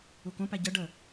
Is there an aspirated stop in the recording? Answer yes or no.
no